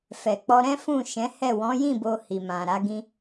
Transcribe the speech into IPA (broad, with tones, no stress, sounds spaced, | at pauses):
f ɛ˨ k͡p ɔ˧ ɾ ɛ̃˦ f ũ˦˨ ʃ ɛ̃˨˦ h ɛ˦˨ w ɔ̃˨˦ j ĩ˦˨ b o˧ h i˨ m ã˨ ɾ a˨˦ ɡ ĩ˦